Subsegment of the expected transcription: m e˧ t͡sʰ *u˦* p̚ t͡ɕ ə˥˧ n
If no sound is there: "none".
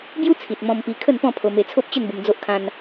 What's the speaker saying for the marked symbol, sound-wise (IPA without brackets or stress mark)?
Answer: o˦